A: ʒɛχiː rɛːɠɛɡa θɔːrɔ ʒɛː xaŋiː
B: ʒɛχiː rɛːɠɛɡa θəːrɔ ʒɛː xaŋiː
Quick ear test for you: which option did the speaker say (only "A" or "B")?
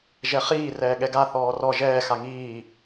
A